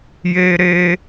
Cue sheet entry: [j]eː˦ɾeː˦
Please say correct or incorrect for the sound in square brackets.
correct